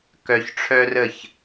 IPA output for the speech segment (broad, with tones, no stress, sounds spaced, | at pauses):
k œ˧ ç ʈ͡ʂʰ œ˦ r ə˦˨ ç